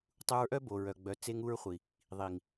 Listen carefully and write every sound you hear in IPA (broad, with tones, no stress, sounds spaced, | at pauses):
tˤ u˧ ɹ ʔ œ˦ b o˨ ɹ œ˨ ɡ͡b œ˨ t͡s e˧ ŋ u˧ ɹ χʷ i˨ | ðˤ i˨ ŋ